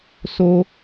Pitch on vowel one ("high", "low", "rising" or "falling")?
high